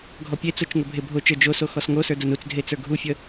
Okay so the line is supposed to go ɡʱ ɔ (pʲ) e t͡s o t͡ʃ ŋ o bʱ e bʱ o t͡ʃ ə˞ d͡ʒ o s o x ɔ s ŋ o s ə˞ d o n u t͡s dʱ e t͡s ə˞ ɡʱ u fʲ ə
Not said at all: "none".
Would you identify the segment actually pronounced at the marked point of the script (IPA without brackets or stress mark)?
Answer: pʲ